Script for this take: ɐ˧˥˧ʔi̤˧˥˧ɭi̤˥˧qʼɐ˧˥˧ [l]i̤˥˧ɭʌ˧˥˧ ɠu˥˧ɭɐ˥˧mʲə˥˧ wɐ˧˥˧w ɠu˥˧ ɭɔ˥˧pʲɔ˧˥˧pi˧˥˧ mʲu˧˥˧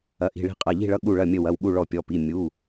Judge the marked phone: incorrect: ʎ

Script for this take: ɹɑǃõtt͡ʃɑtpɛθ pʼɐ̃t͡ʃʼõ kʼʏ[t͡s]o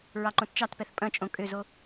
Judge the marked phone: incorrect: z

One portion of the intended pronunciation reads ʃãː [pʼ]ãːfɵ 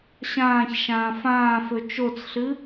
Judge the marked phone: incorrect: f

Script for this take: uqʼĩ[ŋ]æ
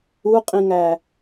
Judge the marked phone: correct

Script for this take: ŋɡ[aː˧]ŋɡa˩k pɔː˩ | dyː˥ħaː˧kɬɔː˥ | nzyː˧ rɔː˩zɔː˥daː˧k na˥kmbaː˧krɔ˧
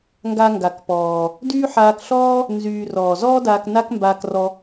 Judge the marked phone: incorrect: a˧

